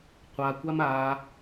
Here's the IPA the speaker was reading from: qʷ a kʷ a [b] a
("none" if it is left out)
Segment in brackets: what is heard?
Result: m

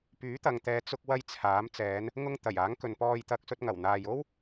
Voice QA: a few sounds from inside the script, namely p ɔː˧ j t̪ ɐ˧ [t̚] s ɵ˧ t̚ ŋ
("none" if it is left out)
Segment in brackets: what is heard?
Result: k̚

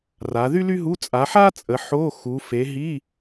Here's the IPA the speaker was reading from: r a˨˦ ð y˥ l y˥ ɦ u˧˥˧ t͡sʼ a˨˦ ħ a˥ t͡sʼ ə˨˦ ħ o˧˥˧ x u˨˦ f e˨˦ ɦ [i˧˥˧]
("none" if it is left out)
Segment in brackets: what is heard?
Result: i˧˥˧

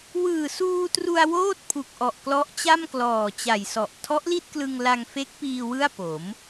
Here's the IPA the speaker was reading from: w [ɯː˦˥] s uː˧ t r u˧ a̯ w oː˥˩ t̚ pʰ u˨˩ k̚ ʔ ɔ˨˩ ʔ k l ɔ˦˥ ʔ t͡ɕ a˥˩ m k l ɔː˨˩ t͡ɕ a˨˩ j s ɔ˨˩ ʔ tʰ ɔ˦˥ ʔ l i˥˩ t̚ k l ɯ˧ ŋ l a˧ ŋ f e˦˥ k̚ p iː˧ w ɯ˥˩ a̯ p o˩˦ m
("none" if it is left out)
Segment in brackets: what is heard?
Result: ɯː˨˩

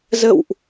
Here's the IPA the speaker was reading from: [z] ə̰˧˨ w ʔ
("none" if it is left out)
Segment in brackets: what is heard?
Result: z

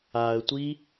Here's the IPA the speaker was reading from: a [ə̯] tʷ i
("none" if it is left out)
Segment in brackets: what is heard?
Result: ə̯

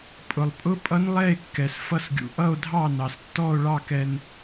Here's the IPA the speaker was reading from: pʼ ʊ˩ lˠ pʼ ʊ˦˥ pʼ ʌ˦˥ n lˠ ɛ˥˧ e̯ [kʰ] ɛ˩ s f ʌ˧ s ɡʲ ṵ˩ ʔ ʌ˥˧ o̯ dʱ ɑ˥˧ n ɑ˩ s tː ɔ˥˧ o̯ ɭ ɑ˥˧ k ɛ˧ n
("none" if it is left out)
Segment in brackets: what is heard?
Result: kː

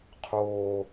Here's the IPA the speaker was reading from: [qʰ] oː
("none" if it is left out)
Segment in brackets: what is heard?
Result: qʰ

